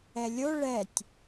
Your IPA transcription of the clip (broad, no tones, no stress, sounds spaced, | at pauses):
ɛ lʲ o ɭ ɛ tʲ